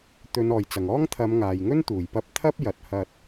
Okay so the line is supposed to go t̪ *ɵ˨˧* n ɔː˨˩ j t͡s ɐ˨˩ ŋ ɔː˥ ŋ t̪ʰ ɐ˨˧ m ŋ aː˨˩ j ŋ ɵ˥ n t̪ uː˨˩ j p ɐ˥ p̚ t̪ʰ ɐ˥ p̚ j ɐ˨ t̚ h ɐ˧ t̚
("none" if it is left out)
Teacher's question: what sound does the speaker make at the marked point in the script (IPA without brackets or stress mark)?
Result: ɵ˨˧